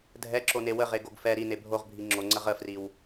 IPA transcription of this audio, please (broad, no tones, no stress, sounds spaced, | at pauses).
dʱ ɛ ǁ o n e w ə ʁ e ɡ o ɡ f ɛ ɾ i n e bʱ o ʁ bʱ i ŋ͡ǁ o ŋ͡ǀ ɜ ʁ ə f r i w